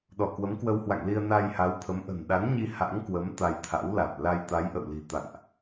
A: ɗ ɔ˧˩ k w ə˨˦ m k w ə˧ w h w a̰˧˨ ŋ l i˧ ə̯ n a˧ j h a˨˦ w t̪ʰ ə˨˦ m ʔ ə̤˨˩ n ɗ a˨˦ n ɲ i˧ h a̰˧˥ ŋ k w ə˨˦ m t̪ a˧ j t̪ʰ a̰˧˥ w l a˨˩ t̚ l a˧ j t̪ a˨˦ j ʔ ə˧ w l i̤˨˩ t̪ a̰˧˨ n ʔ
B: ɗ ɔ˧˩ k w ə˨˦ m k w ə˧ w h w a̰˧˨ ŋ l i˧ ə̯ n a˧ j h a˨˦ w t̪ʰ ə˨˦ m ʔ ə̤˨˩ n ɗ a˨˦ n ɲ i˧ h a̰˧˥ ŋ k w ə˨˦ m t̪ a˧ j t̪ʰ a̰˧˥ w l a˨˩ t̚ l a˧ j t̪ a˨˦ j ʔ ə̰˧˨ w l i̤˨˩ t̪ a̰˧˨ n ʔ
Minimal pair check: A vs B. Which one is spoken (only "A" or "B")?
B